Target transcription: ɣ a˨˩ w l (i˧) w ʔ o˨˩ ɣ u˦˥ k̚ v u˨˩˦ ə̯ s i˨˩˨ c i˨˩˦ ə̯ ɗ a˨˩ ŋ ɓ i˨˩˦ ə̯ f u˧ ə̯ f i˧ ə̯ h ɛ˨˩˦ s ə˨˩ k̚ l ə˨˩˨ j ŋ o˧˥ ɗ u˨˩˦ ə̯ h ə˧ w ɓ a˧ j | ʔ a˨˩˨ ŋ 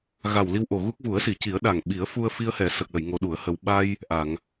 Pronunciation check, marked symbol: correct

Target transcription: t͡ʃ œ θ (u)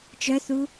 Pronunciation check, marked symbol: correct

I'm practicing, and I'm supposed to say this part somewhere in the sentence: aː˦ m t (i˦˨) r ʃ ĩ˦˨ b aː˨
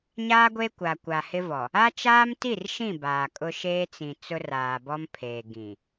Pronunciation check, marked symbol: correct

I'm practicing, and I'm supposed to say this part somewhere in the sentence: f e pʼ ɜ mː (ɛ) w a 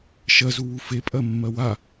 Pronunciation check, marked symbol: incorrect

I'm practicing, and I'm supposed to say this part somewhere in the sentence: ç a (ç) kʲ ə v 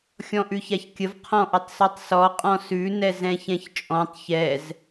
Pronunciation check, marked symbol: correct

